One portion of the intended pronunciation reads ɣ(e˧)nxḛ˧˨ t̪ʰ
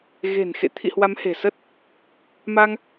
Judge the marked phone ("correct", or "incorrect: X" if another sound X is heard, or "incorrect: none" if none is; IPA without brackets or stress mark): incorrect: e̤˨˩